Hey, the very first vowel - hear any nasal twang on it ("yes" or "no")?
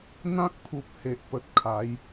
yes